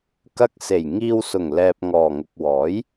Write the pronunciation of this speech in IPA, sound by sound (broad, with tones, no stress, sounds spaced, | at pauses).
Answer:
k ɐ˧ k̚ s e˨˩ j ŋ iː˧ w s ʊ˨˩ ŋ l ɛː˨ p̚ ŋ ɔː˨˩ ŋ ʊ˨ k̚ w ɔː˨˥ j